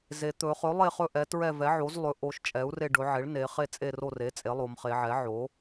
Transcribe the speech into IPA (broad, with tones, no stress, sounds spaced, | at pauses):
z e˩˧ t̪ ɵ˩˧ χ ɵ˩˥ lˠ e˦˨ χ ɵ˦˨ ʔ ɛ˩˧ t ɹ ɛ˦˨ v ɛ˩˥ ʕ o˩˥ z lˠ ɵ˩˥ ʔ o˩˧ ʃ t͡ʃʼ ɛ˩˥ u̯ r e˦˨ ɖ ɵ˩˧ ʕ e˩˥ ɭ n e˩˧ χ e˦˨ t͡sʼ e˦˨ r o˦˨ r e˩˥ t͡sʼ e˩˥ lˠ o˩˧ m χ e˩˧ ʕ ɛ˩˥ ʕ o˩˥